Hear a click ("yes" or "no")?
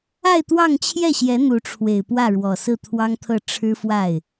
no